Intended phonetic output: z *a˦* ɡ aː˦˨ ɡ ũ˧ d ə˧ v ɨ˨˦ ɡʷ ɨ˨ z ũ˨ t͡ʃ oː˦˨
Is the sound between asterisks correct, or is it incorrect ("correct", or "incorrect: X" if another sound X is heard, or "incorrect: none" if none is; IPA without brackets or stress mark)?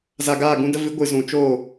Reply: incorrect: a˨